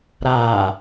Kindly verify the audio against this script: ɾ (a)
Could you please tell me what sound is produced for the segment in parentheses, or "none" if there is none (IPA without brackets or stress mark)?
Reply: a